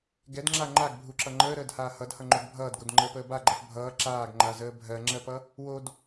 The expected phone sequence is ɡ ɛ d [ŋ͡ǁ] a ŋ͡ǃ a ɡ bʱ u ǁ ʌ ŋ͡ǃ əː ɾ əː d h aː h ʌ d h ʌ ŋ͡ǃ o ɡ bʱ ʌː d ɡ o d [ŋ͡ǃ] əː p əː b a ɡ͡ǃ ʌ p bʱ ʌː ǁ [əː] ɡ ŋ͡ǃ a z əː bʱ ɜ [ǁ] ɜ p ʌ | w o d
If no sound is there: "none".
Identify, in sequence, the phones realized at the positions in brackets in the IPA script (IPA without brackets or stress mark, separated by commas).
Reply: ŋ͡ǁ, ŋ͡ǃ, aː, ŋ͡ǁ